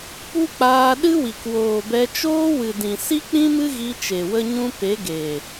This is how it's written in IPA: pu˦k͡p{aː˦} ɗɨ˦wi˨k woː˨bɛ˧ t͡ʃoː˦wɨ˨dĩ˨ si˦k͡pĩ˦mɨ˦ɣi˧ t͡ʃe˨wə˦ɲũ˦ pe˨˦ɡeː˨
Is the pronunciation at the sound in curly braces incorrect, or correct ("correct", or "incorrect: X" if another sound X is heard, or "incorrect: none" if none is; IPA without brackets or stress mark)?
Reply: incorrect: aː˧